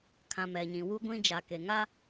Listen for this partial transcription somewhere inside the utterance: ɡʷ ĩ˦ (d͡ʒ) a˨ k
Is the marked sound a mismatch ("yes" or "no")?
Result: no